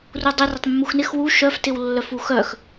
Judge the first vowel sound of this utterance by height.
high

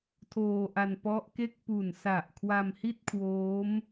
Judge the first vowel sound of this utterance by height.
mid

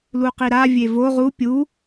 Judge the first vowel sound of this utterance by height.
high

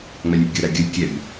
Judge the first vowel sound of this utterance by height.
low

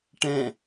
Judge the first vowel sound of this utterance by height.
mid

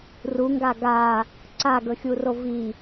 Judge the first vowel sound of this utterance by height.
high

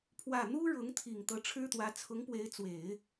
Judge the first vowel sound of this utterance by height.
low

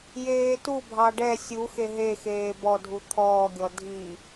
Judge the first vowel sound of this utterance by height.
mid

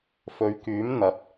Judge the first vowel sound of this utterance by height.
mid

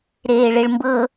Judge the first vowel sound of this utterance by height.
mid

